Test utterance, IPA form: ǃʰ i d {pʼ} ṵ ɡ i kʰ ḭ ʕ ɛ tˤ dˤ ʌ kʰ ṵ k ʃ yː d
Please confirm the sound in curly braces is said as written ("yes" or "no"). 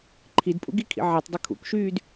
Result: yes